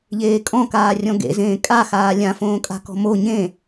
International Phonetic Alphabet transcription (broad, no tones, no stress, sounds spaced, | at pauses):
ʎ eː kʼ ɔ̃ k aː rʲ ɔ̃ ɡ ḛ z ẽː kʼ a x aː lʲ ã f õː kʼ a̤ k ɔ̤ m o ɲ ẽ